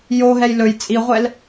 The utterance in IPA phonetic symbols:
joɦɛj lɵj t͡sʼiʁʷɛl

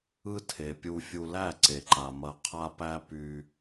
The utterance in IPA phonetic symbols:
ɯ˦tʰe˨pʲu˧fʲu˧ læ˦˨ǀe˨ǃa˨ mɐ˧qʰa˦pæ˦ py˧

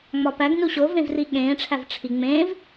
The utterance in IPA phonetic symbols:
ŋ͡mɒpæɡnu ɕovẽv riɠẽːʈ͡ʂʰæv ʈ͡ʂʰi ŋ͡mẽːv

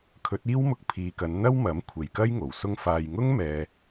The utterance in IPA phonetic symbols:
kʰɵ˨˥t̚iː˥wmʊ˧k̚ pʰiː˨kɐ˨˧n n̪ɐ˥wmɐ˨˥m kʷʰe˨˩jkɐ˥j ŋo˨˩wsʊ˥ŋfaː˧j ŋʊ˥ŋmɛː˨

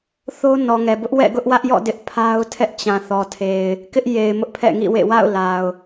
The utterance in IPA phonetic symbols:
θo˦ nɔ˨ŋɛ˨bʊ˦ʔ wɛ̰˦˨ɡʊ˦ʔwä˦ʔjɔ̰˦˨ dɪ˦ʔpʰa˦ʊ̯tʰɛ˦ʔ t͡ɕã˨θɔ˨tʰe˨ɪ̯ | kɪ˦ʔje˨ɪ̯ mʊ˦ʔpʰɛ̰˦˨ŋḭ˦˨wḛ˦˨ wa̰˦˨ʊ̯la˨ʊ̯

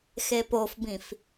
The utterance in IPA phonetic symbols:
xepofbĩf

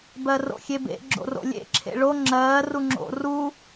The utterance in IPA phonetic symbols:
bɜro̰xʲebḛ ɡ͡ǁo̰ro̰lʲḛ ǁʰḛɭo ŋ͡ǁɜː ruŋ͡ǁo̰ ru

